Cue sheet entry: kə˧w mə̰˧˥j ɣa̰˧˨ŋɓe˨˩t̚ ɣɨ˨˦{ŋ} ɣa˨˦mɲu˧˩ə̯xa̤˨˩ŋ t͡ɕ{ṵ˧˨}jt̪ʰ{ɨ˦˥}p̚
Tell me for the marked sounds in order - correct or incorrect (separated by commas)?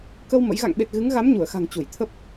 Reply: correct, incorrect, incorrect